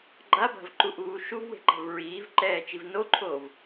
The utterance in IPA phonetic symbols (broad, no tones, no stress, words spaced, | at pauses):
ɡ͡ǃaba̤vǃuʔuː ʃuvwe̤ǃa̤v ɹiːvǃɛːt͡ʃiv noǃʰoːv